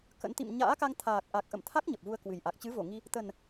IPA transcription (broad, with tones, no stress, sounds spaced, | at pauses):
k ə̰˧˥ n t̪ ḭ˧˨ m ɲ a̰ː˧˥ k a˧ ŋ t̪ʰ aː˨˩ k̚ ʔ a˨˩ k̚ ʔ ə̰˧˨ m t̪ʰ a˦˥ k̚ ɲ ə˨˩ p̚ v u˧ ə̯ k w ɨ˨˩ j ʔ a˨˩ k̚ t͡ɕ ɨ˨˦ v o˧˩ ŋ i˧ | t̪ ə˨˩ n